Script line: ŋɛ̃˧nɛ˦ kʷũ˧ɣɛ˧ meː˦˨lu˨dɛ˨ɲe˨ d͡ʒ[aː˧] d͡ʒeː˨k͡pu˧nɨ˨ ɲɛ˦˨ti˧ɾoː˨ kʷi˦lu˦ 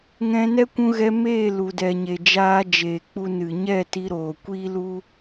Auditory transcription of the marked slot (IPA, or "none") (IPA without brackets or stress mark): aː˧